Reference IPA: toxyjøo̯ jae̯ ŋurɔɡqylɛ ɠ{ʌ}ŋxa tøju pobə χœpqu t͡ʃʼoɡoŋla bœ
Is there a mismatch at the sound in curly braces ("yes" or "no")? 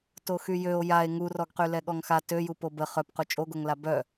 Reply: yes